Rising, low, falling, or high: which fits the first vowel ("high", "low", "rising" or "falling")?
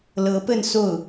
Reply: rising